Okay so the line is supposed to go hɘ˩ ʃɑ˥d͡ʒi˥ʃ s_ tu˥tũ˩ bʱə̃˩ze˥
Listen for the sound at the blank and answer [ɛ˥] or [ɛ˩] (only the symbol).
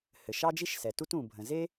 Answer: ɛ˩